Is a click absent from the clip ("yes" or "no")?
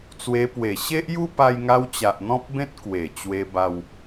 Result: yes